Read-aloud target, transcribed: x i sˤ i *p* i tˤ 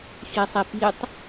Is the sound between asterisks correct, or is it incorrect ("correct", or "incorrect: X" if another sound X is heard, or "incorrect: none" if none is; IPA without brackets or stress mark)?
correct